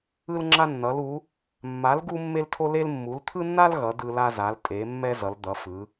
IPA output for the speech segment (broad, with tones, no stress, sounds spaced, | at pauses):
ɯ˦ l ŋ͡ǁ a˦ nː ʌ˨˦ l u˨˦ | mː a˨˦ l ɡ u˦ mː e˦ l tʰ o˦ l e˦ l mː u˨˦ l t̪ʰ ɯ˦ nː a˦ l ɣ ʌ˨˦ d ɯ˦ l a˦ z a˨˦ l tʼ e˨˦ mː ɛ˦ z ʌ˨˦ l d̪ ʌ˨˦ f ɯ˨˦